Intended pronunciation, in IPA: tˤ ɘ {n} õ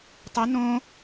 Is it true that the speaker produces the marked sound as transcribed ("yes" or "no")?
yes